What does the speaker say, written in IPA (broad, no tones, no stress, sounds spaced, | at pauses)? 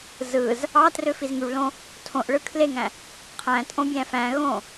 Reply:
z ɯ z | ɑ t r ø f i z ŋ y ɭ l õ | tʰ õ ʔ ɭ ɯ kʰ l e ŋ æ̃ | qʰ æ̃ tʼ õ bʲ æ̃ f æ̃ ɣ õ